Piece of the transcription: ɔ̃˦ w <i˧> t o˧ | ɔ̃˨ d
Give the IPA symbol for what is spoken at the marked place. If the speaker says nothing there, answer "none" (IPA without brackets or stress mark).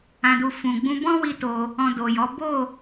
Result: i˦